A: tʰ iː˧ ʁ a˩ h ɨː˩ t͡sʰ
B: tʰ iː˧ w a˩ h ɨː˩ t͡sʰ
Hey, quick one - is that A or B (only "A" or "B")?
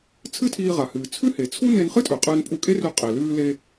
A